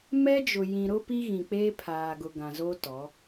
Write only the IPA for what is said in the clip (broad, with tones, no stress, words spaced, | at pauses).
mɛ˦d͡ʒʊ˨ jĩ˨ɾʊ˦ pi˦ ɣĩ˨k͡peː˦pʰaː˨ ɡʊ˨ ɡã˨zo˦tɔ˨˦